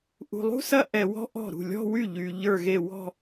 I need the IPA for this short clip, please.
ʔṳ˧lˠṳ˥sɐ˥ ʔɛ˧wɔ̤˥ʔɔ̤˥˩ ɾṳ˥˩lʲɔ̤˥˧wy˥˩ ʎy˧ ʎə˞˥˧ɣe˥˧ wɔ̤˥˧

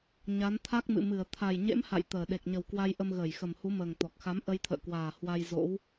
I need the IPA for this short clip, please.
ɲa˨˦nt̪ʰa˦˥k̚ mɨ̰˧˨mɨ˧˩ə̯ t̪ʰa˨˩jɲḛ˧˥m ha̰˧˨j t̪əː˨˩ ɗe˨˩k̚ɲə˨˩wkwa˧j ʔə˧mɣəː˧˩jxə˨˩m hu˨˦məː˨˩ŋ t̪ɔ˨˩k̚xa˨˦m ʔə˧jt̪ʰə̰ː˧˨kwaː˨˩ hwa˧jzo̰˧˥w

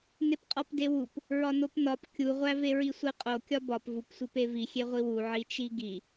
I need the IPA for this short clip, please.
nepqʼɒpdewup | ɹɒnopnɒp kʲuʁʷæve ɹisʷeqʼo kʲɒbɒp vup sʷipevi xʲeʁʷiwu ʕit͡ʃiɡi

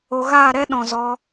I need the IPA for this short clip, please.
o˨ɣaː˦˨ɾɛ˦ ɗɔ̃˨zɔ˧

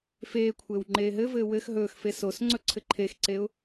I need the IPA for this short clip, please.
feːkʷʰɘːw ŋ͡ǃeːɦɘvɘː wɘx ɦɵːxfe sos ŋ͡ǀɵǀʰɘǃʰexǀeʊ̯

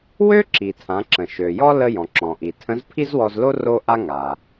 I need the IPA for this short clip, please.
wø˥ǁi˩tʰã˩˧ ǁə̃˩ʃø˩jɔ˥ lə˧jɔ̃˩ ǁɔ̃˩ʔi˩tʰə̃˧˥z pʰi˥zwɔ˧zlo˥ ro˥ʔa˥ ŋa˩

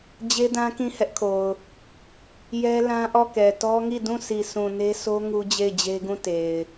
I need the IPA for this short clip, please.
d͡ʑe˦dã˦ kĩ˦˨ hɛ˦ʔkʰo˨ʊ̯ | jɛ˦lã˦ʔɔ˦˨kɛ˨ tɔ˦ŋi˦˨dũ˦˨ si˨sũ˨ne˦so˦ ŋu˦d͡ʑe˦˨ɪ̯d͡ʑe˦ɡũ˦˨ te˨ɪ̯

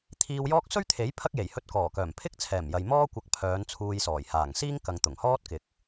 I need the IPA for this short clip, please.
t̪ʰiː˧wjɔː˥k̚ sɵ˥ɥt̪ʰe˨˥j pʰɐ˥k̚je˨˩j hɵ˧t̚kɔː˨˩kœː˨˩m pʰɪ˥k̚t͡sʰɛː˨˩mjɐ˨j mɔː˥ kʷɐ˧k̚pʰœː˨˧n t͡sʰuː˧jsɔː˨˩j haː˨˩ŋsiː˥ŋkɐ˨ŋ t̪ʊ˨˩ŋhɔː˥t̚kɪ˨k̚

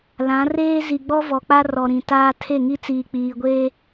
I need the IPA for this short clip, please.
lã˨˦reː˦ zi˨ɡ͡bɔ˦vɔ˨k͡pa˦ rɔ˨ɾĩ˨ taː˦ tʰe˦˨ŋi˦t͡siː˨ k͡piː˨ɡʷeː˦

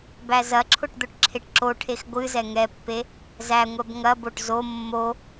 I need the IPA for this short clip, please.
bæzɐǁʰʊʈ d̪ʊʈǁʰeʈǁoʈʰex ɡʷɨzɛ ŋɛpːe | zæŋʷɛb ŋɐboʈ zo mːo

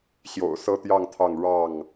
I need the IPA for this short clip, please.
ɕjo̰˨˩ʊ̯sɤ˦t̪jɑ˥˨ŋt̪ʰɑ˥˨ŋ ɻɑ˥˨ŋ

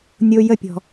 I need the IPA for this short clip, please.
nʲo˥ jə˥pʲɔ̤˧

